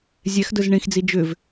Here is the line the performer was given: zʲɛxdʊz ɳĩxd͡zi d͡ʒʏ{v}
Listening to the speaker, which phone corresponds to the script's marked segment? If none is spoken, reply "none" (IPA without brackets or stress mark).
v